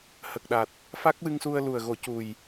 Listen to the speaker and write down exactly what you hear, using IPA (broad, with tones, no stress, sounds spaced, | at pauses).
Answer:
h ə˨˩ k̚ ɗ a˨˩ t̚ | f a˦˥ k̚ w ɨ˧ ŋ s u˧ ə̯ l u˨˩ ə̯ ɣ o˨˩˦ c u˨˩ j